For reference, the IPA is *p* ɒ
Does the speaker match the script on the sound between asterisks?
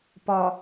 yes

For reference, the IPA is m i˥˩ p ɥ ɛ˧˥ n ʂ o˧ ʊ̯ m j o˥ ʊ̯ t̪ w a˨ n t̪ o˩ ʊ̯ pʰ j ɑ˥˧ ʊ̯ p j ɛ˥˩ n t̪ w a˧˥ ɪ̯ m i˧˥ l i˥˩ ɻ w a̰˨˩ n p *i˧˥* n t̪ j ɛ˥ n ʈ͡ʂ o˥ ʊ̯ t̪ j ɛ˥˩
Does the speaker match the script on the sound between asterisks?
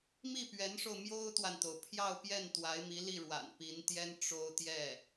yes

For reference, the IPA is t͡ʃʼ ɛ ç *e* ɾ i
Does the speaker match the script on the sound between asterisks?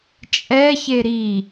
yes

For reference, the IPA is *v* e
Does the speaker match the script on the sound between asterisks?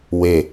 no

